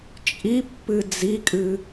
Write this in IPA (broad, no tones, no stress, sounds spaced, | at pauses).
t͡ʃʼ i pː ɨ d͡z i kʼ ɨ